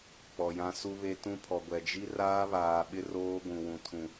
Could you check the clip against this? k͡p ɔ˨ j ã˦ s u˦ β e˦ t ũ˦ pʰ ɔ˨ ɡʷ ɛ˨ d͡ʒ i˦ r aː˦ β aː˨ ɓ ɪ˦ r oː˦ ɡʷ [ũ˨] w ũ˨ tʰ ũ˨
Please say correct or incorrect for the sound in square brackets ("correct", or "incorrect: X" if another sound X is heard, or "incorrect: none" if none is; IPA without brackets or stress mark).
correct